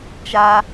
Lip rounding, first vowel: unrounded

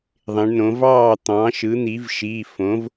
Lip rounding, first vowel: unrounded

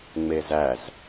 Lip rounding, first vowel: unrounded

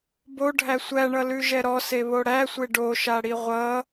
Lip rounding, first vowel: rounded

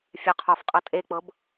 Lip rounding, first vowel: rounded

